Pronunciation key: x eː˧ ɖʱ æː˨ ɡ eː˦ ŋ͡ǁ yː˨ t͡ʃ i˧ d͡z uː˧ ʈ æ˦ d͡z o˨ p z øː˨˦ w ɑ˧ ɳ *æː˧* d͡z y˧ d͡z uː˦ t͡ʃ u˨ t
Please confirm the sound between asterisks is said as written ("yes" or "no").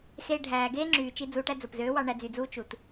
no